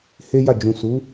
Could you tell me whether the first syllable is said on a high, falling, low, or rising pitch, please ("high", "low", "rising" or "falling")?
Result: high